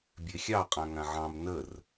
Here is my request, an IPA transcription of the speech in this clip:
bʲ e xʲ ɑ qʼ ã ŋ ã ʕ ɑ̃ m n ə r

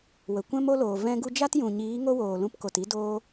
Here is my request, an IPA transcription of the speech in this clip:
w ə˨ kʷ ɛ̃˦ m o˦ l oː˨ v ɛ̃˧ ɡ u˧ d͡ʒ a˦ t j ũ˨ ɲ iː˨˦ ŋ o˦ w oː˨ l ũ˧ p k o˨ t i˧ d oː˧

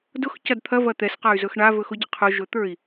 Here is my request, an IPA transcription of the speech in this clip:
d ʊ x c ɐ d t̪ʰ ɐ v ɐ t̪ ɛ s q a y̯ z ɵ x ɳ a v ɵ x ʊ ɟ ə qʰ ʊ ʒ ɵ t̪ ə˞ i̯

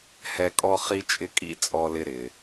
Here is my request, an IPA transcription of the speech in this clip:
h ɛ˦ kʼ ɔ˥ χ i˥ t͡ʃʼ ɪ˥ kʼ ḭ˥ t͡sʼ ɔ˦ l ɪ˦ ɾ ɪ˩

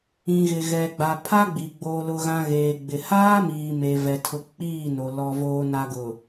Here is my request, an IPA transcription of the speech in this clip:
ĩ˨ ɣ ɪ˨ ɣ ɛ˨ ɡ͡b a˨ pʰ a˦ ɡ͡b i˨ ɡ͡b oː˨ l ʊ˨ ɣ ã˨ ɣ eː˨ ɡ͡b ɪ˨ h aː˦ m iː˨ m e˨ v ɛ˨ tʰ ʊ˨ k͡p iː˦˨ n o˨ l ɔ˨ v oː˨ n a˨ ɡ ʊ˨

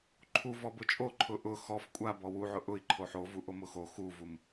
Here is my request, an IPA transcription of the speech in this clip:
ǃʰ u v ɔ b ʊ t͡ʃʼ o ǃʰ ʊ ʔ ʊ x ɔ f kʷʼ a b ɔ w u ʕ ʊ ʔ ʊ i̯ ǃʰ o ħ o v u ʔ o m ʊ x o x u v u m

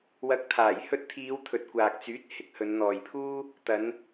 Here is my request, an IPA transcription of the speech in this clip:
w ɐ˨˥ k̚ t̪ʰ aː˨˩ j h ɵ˧ t̚ t̪ʰ iː˨˧ w t̪ʰ ɵ˨ t̚ kʷ aː˨ k̚ t͡s yː˨˥ t̚ h ɪ˨˥ k̚ h ɵ˨˧ n n̪ ɔː˨ j pʰ uː˥ | t̪ ɐ˨˧ n

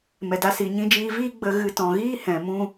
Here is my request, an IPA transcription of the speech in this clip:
m ɛ˨ d a˧ s i˨ ɲ ĩ˧ d͡ʒ iː˧ v iː˦ ɡ͡b ə˧ ɣ ɨ˧ t ɔ̃˨ ɣ iː˦ h ɛ̃˨ m ũ˦

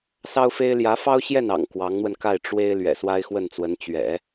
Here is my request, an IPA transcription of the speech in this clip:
s ɑ˥ ʊ̯ f e˥ ɪ̯ l j ä˧˥ f ɑ˥ ʊ̯ ɕ j ɛ˥˩ n ɑ̰˨˩ ŋ k w ɑ˧˥ ŋ n̪ w ə˧ n k a˥˩ ɪ̯ ʈ͡ʂ w e˥ ɪ̯ l ɥ ɛ̰˨˩ s w a˥ ɪ̯ x w ə˥˩ n t͡s w ə˧˥ n t͡ɕ ɥ ɛ̰˨˩˦

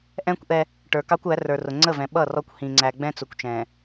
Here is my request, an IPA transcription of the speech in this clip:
ʔ ɛ̃˦ kʷ ʔ ɛ˦ | ʈ ə˞˨ k ɑ˦ kʷ æ˨˦ r ə˞˨ r ʊ˨ ŋ͡ǀ ə˦˨ v ɛ̃˨ ɓ ʌ˦˨ r ɔ˦ kʷ h ĩ˨ ŋ͡ǀ æ˨ ɡ͡b ɛ̃˦ t͡s ʊ˨ kʷ t͡ʃ ɛ̃˨

